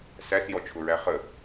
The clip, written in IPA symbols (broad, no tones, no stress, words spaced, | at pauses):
sæsjɔt͡ʃʰʊɹæ χə